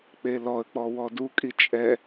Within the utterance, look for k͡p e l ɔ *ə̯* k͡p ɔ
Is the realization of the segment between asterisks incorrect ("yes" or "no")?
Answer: no